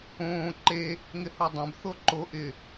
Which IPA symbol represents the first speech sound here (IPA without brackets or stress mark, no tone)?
õː